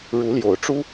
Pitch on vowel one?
rising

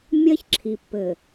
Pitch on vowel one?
high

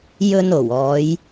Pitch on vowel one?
low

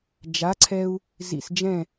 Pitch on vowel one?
rising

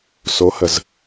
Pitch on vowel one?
rising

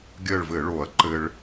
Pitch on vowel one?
falling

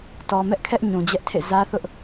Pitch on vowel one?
low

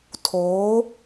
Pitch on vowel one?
rising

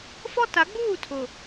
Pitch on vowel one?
high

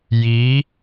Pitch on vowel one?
rising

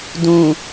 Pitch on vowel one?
low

